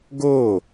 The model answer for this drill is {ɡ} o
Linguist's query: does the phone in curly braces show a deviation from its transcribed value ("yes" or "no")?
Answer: no